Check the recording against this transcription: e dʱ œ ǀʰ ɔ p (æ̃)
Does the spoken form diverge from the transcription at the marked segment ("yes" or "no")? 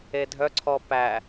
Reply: yes